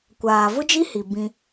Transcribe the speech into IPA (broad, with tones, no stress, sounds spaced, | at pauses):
kʷ aː˨ v ʊ˦ d͡ʒ i˦ h i˨ b ĩ˦